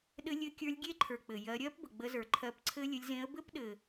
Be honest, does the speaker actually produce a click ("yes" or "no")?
yes